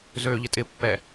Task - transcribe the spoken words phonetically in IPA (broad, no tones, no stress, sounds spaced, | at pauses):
z øː ʎ ɪ tʼ ɪ pː ɛ